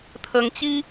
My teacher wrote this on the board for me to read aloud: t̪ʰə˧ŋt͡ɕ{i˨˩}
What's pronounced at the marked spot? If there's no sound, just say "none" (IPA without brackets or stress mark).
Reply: i˦